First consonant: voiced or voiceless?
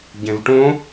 voiced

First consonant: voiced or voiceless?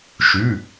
voiceless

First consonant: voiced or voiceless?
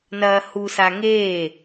voiced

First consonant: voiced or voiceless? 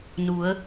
voiced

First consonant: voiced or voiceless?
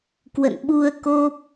voiceless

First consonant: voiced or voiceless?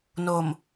voiced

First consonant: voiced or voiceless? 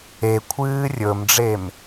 voiceless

